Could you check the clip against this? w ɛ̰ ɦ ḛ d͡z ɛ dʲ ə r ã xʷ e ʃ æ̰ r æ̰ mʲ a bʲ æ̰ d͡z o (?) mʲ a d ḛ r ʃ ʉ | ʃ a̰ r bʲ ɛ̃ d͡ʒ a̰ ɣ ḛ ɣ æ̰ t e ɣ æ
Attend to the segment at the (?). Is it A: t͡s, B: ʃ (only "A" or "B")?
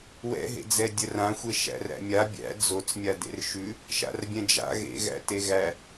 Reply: A